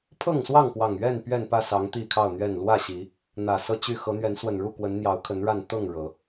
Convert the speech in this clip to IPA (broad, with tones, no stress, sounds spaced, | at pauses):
pʰ ɤ˥˨ ŋ s w ɑ˥˨ ŋ p w ɑ˨˩ ŋ ɥ ɛ˥˨ n p ɥ ɛ˥˨ n p ä˥˨ s ɑ˨˦ ŋ t̪ i˥˨ kʰ ɑ˥˨ ʊ̯ n̪ ɥ ɛ˥˨ n l w ä˥˨ ɕ i˨˦ | n̪ ä˨˩ s ɤ˥˨ t͡ɕ y˥˨ x ɤ˨˦ n̪ ɥ ɛ˨˦ n s w ə˨˩ n ɻ u˥˨ k w ə˨˦ n n̪ j ɑ˨˦ ʊ̯ kʰ ə˨˦ n ɻ a˥˨ n t̪ ɤ˥˨ ŋ ɻ ɤ˨˦